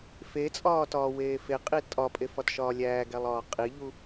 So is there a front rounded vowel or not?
no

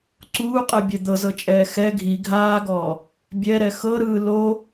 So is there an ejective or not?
yes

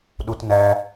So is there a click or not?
no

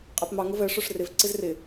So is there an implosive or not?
no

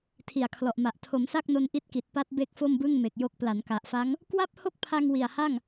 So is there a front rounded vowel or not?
no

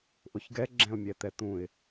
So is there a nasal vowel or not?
yes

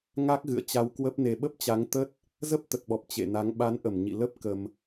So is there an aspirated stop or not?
no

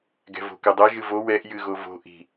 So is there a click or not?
no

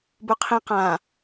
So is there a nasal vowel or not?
yes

